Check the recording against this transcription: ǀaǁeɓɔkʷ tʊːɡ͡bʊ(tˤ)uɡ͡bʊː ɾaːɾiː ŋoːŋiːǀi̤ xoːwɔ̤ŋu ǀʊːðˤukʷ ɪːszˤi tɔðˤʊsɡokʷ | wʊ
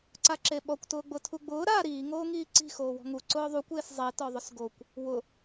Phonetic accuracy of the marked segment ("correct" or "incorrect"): incorrect